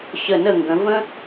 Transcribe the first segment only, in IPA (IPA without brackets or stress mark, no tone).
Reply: ɕ